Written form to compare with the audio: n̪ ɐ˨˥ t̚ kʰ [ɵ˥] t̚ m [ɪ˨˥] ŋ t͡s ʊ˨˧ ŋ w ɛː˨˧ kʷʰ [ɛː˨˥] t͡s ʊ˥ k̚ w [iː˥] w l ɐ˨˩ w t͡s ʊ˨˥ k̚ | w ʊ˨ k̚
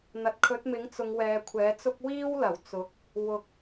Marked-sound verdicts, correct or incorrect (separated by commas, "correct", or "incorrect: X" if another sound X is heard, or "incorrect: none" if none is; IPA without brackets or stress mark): incorrect: ɵ˨˥, correct, correct, correct